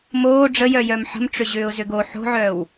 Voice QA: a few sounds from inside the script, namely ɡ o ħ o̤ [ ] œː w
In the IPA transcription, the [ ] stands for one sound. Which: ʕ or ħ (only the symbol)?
ʕ